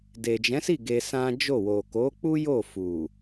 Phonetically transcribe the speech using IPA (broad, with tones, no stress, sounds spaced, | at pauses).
d e˨ d͡ʒ ɛ̃˨˦ s i˦˨ ɡ e˧ s ã˦ d͡ʒ o˦˨ w o˨ k o˨˦ k͡p u˦ j o˦˨ f u˨